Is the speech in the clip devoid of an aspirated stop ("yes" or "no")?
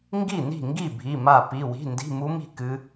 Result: yes